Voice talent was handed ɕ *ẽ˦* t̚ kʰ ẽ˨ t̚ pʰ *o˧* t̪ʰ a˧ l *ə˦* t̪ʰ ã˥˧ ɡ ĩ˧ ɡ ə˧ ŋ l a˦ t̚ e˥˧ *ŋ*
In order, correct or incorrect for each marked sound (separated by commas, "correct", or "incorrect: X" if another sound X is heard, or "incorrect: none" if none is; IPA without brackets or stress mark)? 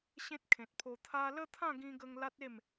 correct, correct, correct, incorrect: m